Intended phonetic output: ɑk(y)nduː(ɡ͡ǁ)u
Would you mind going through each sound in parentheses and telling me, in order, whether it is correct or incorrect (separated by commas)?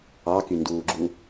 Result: correct, correct